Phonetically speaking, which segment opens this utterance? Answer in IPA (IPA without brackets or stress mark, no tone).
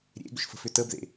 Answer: ɾʲ